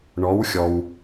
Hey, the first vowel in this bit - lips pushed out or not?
yes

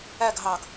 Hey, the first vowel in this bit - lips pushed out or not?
no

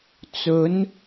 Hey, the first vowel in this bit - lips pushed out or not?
yes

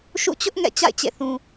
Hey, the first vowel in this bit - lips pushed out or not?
yes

